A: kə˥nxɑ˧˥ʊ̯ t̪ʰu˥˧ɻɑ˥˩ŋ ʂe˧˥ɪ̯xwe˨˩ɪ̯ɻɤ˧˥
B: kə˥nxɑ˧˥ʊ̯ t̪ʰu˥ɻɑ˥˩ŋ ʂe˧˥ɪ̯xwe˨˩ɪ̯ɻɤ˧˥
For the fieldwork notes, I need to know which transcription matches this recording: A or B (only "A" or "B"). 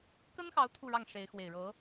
A